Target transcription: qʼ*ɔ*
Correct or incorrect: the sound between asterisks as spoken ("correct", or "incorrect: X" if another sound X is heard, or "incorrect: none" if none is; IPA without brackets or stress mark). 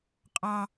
incorrect: ɑ